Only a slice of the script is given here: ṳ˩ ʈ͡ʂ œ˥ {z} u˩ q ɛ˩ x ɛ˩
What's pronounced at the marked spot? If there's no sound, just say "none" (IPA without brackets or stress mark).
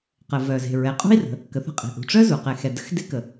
z